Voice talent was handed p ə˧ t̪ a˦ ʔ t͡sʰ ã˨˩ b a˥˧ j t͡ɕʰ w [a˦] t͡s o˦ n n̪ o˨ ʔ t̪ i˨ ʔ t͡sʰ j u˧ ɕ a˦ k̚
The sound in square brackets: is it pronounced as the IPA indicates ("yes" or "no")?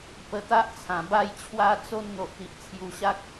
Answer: yes